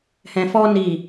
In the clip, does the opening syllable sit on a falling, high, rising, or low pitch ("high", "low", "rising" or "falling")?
low